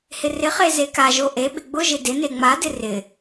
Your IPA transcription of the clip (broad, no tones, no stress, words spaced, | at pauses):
hɪrɪχe zekaʒo ʔeɓɪ ɡ͡bʊʒɪ dɪne ŋ͡madɪ rɪ